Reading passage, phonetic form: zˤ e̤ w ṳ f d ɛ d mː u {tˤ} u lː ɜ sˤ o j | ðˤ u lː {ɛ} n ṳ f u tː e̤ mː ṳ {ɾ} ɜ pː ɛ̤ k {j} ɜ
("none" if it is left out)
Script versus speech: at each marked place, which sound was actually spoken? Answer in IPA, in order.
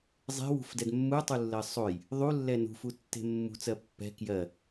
tˤ, ɛ, t͡s, j

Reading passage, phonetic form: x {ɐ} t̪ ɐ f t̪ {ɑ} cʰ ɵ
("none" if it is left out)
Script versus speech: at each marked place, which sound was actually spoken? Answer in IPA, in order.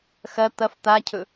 ɐ, a

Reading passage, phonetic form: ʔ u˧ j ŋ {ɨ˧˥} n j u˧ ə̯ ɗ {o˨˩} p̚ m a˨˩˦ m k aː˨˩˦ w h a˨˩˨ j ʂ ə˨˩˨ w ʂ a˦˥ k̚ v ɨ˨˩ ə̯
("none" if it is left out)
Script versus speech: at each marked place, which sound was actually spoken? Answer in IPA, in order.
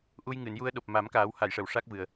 ɨ˨˩˨, o˨˩

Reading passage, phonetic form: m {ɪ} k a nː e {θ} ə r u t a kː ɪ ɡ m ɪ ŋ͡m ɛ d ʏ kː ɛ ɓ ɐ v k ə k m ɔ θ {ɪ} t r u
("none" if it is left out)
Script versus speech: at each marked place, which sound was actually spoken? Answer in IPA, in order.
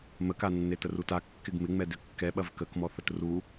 ə, t, ə

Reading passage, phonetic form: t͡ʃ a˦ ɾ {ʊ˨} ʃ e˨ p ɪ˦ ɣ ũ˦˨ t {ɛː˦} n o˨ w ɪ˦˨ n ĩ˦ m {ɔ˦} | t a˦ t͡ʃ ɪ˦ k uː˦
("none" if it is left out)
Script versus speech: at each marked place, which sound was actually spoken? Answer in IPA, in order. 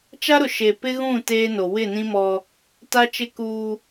ʊ˨, eː˦, ɔ˦

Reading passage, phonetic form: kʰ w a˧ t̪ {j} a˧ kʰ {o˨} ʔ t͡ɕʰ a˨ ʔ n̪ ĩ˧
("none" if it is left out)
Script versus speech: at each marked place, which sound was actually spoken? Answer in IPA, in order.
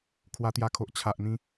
j, o˨

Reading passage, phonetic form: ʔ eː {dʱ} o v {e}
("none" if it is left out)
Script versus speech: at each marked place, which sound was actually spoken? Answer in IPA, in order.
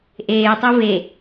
tˤ, e

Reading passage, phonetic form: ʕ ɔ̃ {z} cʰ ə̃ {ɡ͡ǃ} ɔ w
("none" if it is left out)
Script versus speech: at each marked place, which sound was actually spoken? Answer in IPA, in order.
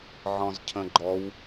z, ɡ͡ǃ

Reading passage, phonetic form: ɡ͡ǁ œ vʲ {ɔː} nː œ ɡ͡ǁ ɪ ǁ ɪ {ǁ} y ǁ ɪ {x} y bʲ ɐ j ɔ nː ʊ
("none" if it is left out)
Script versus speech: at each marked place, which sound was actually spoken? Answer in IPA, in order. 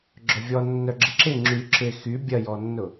ɔ, ŋ͡ǁ, x

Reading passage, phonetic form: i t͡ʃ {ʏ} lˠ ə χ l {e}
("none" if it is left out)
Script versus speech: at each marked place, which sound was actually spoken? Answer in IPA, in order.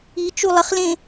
u, ẽ

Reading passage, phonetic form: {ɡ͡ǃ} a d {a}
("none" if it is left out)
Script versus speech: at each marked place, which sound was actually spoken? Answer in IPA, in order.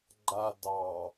ɡ͡ǃ, ɑ

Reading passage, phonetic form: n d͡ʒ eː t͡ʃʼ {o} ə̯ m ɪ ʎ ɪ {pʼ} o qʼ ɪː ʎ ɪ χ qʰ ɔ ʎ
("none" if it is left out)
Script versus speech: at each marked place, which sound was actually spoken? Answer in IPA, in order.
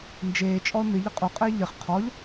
ɔ, qʼ

